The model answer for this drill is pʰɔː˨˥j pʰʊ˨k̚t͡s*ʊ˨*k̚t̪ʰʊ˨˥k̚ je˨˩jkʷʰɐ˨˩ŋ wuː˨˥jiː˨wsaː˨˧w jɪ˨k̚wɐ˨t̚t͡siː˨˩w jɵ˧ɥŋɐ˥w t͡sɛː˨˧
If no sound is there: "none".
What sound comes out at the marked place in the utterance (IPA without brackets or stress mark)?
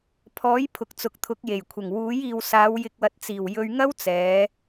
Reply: ʊ˨